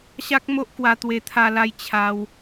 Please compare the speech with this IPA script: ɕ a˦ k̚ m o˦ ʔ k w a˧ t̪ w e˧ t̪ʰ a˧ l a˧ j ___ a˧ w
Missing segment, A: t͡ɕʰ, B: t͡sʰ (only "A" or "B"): A